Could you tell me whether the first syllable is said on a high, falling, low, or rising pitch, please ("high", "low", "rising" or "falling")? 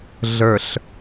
low